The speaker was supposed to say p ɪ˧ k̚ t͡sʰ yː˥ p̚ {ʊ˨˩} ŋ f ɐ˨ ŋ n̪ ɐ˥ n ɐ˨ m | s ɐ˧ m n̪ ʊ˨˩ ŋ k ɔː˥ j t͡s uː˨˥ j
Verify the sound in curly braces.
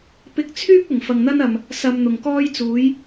correct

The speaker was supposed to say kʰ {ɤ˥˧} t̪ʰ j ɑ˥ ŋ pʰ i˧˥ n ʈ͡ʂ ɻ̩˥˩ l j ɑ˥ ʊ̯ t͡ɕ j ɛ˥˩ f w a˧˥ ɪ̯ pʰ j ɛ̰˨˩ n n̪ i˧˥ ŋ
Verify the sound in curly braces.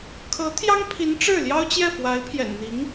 incorrect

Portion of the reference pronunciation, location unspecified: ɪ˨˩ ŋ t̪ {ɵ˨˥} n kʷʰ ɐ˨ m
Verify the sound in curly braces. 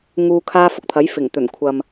incorrect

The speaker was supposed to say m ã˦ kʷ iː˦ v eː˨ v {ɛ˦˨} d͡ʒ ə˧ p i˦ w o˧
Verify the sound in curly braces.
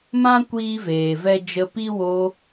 incorrect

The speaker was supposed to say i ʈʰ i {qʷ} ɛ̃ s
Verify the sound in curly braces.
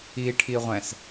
incorrect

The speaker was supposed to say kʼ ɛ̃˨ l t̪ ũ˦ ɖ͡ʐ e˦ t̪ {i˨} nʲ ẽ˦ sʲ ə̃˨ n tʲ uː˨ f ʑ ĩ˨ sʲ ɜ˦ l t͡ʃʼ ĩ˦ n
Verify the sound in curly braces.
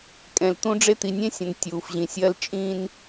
correct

